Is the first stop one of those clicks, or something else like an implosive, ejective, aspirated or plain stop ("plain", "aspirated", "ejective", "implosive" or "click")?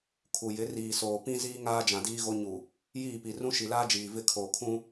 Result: aspirated